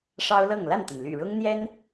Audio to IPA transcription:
ʂɑ˦ʊ̯ lɤ˥˨ŋ la˥˨nt̪ə˩n ly̰˨˩ɻʊ˦ŋ n̪jɛ˦n

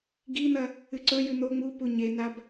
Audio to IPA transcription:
ɡin̪ɐ | ɨǀɵjʉ n̪o ŋ͡mupu ɲenab

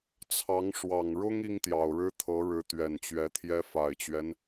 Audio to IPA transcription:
t͡sʰɑ˧˥ŋ ʂwɑ˨˩ŋɻʊ˥ŋ i˥ŋt̪jɑ˨˩ʊ̯ɻɻ̩˥t̪ʰɤ˧˥ ɻɻ̩˧˥t̪ɥɛ˨˩nt͡ɕɥɛ˧˥t̪ʰjɛ˥ fa˨˩ɪ̯t͡ɕɥɛ˦n

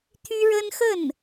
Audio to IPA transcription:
t̪ʰy˥ɻə˥nxə˥˩n

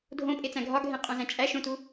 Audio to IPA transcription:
dʱõpʼet͡sæ̃ ɡʱɒɡʱẽqʼõzæ̃ t͡ʃʼæʃõtu

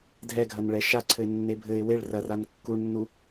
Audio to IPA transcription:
dʱɛɡʱɐnɭɛ ʃaǀʰɘɪ̯nːe bʱɘɪ̯ weɭ rɐran kːuɳnːu

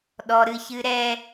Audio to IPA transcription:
ɗɔ˦ɾɨ˦çɨ˦ɾɛ˦

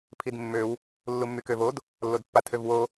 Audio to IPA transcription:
pʰidmːøw | lːumːykøvod | lːodpːatʰøvwo

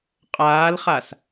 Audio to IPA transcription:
qʼaːlχas

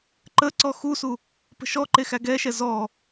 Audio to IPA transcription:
ǃəǀɔ xusu | pə̤ʃɔǃe xæɡɛʃɛ zɔ

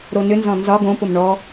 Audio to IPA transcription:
ɾonʏnzɔ̃ nzɒ ɡõpʊm ɳɔ

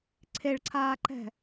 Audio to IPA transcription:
ǀʰeɭǀʰaːǃɛ̤

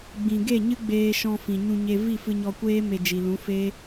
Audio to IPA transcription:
ɡ͡bĩ˨ɡe˦˨ɲɨ˦ ɡ͡beː˧ʃɔ̃˧ fĩ˨ɲũ˧ɲe˧ vi˦˨fɨ˧ɲɔ˧kʷeː˦ me˧d͡ʒi˨lũ˨˦ fe˦

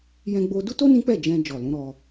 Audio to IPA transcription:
jɛ̃˧ɡ͡bo˧du˦to˦ nĩ˦k͡pɛ˦˨ d͡ʒɛ̃˧ d͡ʒɔ˨lũ˨˦ɾɔ˧

